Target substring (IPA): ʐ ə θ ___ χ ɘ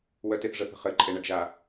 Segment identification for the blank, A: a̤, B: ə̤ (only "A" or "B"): B